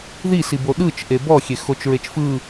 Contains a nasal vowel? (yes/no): no